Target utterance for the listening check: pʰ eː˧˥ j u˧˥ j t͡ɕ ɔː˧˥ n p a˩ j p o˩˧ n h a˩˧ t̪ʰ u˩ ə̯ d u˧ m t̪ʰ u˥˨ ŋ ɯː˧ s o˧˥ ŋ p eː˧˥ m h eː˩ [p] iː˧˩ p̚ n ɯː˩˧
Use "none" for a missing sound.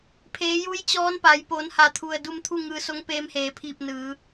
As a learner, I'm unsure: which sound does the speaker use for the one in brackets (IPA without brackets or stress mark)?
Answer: pʰ